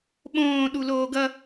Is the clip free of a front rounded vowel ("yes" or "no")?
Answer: yes